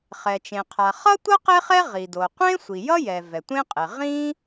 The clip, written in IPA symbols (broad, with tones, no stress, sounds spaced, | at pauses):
χ ɛ˩ t͡ʃ ẽ˩ qʰ a˩ χ ʌ˥ tʷ ʌ˥ q e˥ χ ɛ˥ ʁ i˩ d o˩ qʷ ẽ˥ sʷ i˩ j ʌ˥ j ɛ˩ v ɛ˩ tʷ ẽ˥ qʼ e˩ ʁ ĩ˥